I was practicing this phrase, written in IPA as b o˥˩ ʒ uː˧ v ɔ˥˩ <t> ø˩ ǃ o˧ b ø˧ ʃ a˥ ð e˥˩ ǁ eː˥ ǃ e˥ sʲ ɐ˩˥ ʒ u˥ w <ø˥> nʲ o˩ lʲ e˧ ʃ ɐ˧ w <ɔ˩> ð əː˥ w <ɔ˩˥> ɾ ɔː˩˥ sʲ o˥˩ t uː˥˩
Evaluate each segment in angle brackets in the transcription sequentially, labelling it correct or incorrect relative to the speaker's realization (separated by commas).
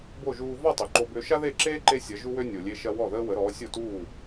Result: incorrect, correct, incorrect, incorrect